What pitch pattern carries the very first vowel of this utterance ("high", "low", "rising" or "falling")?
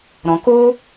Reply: low